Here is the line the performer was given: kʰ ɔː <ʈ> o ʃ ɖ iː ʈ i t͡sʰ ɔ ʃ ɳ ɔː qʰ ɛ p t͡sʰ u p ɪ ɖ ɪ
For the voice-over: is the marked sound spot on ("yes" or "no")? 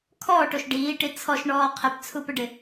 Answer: yes